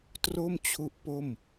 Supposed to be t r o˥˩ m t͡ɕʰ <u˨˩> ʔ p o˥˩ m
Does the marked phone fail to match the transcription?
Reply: yes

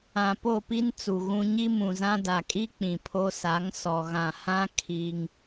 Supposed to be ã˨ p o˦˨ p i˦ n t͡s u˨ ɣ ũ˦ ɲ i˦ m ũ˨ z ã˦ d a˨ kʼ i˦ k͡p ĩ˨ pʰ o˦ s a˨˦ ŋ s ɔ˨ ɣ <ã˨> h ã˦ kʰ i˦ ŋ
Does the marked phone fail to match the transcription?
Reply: no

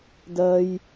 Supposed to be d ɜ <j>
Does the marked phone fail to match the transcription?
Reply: no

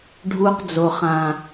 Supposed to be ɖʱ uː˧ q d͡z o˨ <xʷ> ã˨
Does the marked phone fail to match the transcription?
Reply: yes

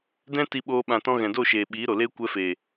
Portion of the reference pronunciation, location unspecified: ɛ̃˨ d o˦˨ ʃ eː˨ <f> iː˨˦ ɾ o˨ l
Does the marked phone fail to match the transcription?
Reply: yes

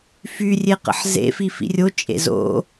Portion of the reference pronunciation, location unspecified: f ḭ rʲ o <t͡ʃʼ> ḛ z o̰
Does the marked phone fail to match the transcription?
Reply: no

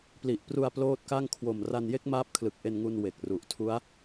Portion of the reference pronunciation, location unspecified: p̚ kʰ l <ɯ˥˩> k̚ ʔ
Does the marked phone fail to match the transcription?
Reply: yes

